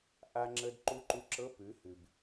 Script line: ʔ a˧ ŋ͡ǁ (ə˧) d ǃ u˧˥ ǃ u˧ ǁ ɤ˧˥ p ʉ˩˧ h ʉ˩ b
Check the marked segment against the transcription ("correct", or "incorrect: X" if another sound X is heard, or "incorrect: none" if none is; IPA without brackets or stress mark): correct